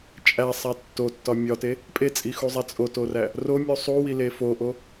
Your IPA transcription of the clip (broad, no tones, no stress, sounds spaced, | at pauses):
t͡ʃʼ æ sˤ æ tː o tː ɒ mʲ ɒ t e | pʼ e t͡sʼ i x u zˤ æ t͡sʼ o t o r æ | r o mʲ u sˤ u w i l e f o ʔ o